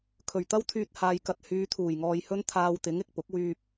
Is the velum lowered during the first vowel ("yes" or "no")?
no